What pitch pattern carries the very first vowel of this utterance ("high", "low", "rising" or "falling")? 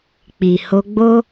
low